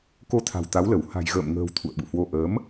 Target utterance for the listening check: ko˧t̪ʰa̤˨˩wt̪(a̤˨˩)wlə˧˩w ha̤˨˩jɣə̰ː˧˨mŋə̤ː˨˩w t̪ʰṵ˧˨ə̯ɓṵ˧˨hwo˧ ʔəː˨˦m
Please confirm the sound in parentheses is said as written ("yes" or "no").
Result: no